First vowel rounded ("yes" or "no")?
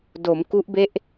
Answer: yes